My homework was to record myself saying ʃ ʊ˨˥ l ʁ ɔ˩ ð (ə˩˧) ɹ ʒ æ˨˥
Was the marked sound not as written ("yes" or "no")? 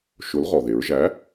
yes